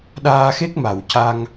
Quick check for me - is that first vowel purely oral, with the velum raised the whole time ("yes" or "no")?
yes